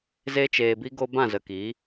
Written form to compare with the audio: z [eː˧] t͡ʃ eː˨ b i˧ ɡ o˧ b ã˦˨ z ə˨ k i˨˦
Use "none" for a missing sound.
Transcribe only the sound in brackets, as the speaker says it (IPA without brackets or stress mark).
e˧